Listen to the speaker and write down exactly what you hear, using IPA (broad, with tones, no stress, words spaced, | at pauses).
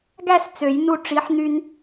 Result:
ɡæ˥˧s t͡sø˨˩˦jnu˧ ʈ͡ʂi˩˥ħ n̪y˧n